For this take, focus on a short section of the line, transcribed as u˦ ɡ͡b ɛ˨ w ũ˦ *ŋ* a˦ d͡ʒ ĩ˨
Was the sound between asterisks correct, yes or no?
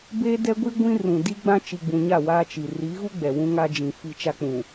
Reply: yes